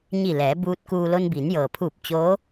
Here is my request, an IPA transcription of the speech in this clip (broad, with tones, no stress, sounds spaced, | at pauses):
ɲ i˧˩ l ɛː˩˧ b uː˧ t̚ k uː˧ l o˧ n b iː˩˧ n j ɤː˩ pʰ uː˧˩ p̚ t͡ɕ oː˧˥